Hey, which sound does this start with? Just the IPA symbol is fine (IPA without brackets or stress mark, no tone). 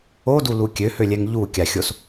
o